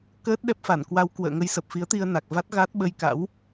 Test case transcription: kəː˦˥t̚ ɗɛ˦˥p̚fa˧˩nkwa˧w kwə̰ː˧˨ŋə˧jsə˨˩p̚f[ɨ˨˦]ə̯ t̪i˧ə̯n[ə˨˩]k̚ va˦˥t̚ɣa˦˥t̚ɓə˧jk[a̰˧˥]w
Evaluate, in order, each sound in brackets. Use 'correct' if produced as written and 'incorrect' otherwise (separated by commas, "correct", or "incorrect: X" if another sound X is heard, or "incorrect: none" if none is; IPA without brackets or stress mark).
incorrect: i˨˦, incorrect: a˨˩, correct